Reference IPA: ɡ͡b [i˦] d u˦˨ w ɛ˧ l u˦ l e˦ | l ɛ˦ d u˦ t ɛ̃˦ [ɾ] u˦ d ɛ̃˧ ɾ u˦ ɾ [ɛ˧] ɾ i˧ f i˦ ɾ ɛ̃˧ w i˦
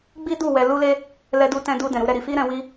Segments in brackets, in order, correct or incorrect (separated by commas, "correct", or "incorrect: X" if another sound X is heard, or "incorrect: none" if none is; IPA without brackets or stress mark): correct, incorrect: d, incorrect: ɛ˦